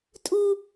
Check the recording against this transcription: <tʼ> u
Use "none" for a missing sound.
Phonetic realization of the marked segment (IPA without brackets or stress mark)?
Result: tʼ